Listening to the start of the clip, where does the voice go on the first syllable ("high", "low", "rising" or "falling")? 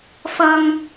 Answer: low